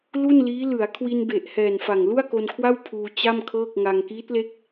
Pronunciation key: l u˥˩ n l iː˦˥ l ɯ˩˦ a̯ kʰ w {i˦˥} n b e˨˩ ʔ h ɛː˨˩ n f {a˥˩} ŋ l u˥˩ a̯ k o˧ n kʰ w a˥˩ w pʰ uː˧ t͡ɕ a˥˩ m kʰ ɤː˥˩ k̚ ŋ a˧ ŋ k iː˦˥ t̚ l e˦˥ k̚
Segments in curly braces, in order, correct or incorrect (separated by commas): incorrect, incorrect